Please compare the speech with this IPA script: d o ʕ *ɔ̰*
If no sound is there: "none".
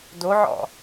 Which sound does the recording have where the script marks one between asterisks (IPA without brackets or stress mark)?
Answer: ɔ̰